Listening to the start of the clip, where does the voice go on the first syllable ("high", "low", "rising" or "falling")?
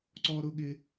high